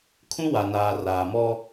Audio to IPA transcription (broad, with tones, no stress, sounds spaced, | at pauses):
kʰ ũ˦ w a˨ n aː˨ r aː˨ m ɔ˦